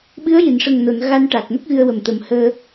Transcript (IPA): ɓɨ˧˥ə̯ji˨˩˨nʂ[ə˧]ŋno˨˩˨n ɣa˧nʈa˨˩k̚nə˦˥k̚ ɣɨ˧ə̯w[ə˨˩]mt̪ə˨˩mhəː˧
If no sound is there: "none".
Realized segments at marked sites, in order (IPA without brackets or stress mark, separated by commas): ə˨˩, ə˨˩